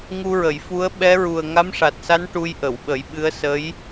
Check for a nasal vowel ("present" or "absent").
absent